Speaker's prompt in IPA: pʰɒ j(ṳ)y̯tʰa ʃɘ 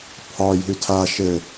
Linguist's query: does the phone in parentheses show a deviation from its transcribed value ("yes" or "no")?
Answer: no